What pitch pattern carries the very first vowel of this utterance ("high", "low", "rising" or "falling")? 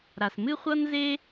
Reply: low